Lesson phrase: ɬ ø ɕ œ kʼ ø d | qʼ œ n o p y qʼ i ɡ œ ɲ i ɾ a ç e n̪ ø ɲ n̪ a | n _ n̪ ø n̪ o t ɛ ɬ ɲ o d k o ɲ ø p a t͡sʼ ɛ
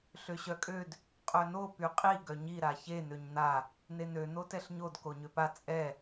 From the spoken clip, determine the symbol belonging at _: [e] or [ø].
e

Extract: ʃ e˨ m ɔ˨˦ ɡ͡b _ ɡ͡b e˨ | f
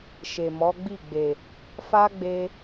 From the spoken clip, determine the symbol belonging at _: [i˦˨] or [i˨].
i˦˨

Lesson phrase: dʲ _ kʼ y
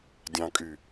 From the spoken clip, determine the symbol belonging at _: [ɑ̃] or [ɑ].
ɑ̃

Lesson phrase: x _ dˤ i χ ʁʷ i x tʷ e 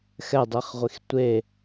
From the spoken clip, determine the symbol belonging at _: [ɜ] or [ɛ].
ɛ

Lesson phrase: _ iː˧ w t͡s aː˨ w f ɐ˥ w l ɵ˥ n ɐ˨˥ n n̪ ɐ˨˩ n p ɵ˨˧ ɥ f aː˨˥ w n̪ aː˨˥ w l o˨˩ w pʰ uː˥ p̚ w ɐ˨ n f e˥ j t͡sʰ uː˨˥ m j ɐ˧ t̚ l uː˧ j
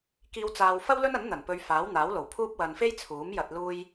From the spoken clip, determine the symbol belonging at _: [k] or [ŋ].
k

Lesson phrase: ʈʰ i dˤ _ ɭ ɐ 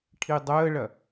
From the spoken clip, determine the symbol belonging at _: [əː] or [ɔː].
əː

